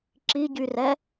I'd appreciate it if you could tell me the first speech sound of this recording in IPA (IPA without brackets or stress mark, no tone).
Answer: ǁ